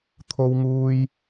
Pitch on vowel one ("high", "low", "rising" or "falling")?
high